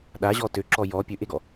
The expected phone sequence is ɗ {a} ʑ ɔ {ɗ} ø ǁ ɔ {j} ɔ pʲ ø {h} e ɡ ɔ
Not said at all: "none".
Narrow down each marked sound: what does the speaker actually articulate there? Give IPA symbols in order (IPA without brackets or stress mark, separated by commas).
a, t, j, ʔ